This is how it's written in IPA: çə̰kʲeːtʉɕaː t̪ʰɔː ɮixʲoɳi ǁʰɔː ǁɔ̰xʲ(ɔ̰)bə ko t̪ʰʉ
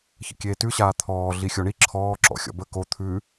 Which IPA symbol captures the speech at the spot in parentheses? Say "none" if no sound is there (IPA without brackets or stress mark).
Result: ɔ̰